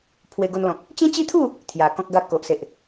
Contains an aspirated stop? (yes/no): yes